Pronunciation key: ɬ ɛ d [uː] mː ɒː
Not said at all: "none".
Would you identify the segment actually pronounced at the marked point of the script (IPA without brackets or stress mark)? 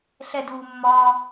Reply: uː